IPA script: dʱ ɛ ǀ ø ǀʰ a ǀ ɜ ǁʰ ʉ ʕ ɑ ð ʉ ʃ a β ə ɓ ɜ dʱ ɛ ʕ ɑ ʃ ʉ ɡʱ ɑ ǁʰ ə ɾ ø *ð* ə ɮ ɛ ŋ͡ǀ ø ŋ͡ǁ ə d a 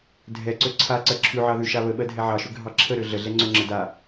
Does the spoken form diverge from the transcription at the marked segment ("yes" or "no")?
yes